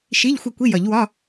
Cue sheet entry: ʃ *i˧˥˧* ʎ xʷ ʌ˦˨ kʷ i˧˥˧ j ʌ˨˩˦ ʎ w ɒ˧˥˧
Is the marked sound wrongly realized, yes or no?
no